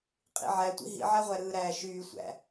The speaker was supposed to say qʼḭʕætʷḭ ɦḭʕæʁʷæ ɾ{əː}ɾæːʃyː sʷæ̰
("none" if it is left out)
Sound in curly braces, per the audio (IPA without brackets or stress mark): ɯː